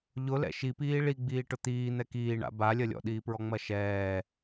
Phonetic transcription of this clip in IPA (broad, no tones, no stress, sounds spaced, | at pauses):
ʎ ʊ l ɛ̰ ʃ i p iː ɭ i ɡ͡b iː ʈ ʊ t̪ iː n̪ ɛ k iː ɳ a̰ b a lʲ ɐ lʲ ɔ̰ ɗ iː p ɹ ɔ ŋ͡m ɐ ʃ ɛː